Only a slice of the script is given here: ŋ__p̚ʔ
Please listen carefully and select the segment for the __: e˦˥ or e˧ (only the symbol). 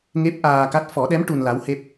e˦˥